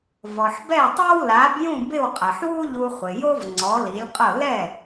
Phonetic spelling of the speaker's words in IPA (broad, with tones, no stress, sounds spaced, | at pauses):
v ɔ˩ ħ b ɛ˥˩ tˤ a˥ w l a˩˥ b j ũ˥˩ b ɪ˥˩ w qʼ ɛ˩ ħ w u˥ ʎ u˧ χʷ ɪ˩ j o˥ v ŋ͡ǀ ɔ˩˥ l i˩˥ lʲ qʼ ʊ˥˩ l ɛ˥˩